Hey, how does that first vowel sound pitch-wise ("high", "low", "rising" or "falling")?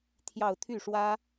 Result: falling